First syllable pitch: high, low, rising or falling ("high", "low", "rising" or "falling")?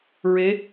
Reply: rising